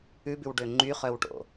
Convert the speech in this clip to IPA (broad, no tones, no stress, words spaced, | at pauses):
ʉbʉwɖø ŋ͡ǃyχœwʈo̰